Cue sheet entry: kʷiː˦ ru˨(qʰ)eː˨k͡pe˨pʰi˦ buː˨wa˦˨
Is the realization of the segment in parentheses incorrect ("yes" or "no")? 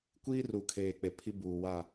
yes